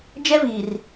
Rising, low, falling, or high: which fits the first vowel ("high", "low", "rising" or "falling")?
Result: high